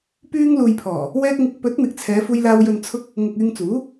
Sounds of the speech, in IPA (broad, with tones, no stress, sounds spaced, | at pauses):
p yː˧ ŋ l uː˨ j pʰ ɔː˨˩ | w ɛː˧ k̚ ŋ ɪ˨ k̚ p ɵ˨˥ t̚ n̪ ɪ˨ k̚ t͡sʰ ɛː˨˧ f uː˧ j l aː˧ w j ɵ˨ n t͡sʰ ʊ˧ k̚ | ŋ ʊ˨ k̚ yː˧ ŋ t͡s uː˨˥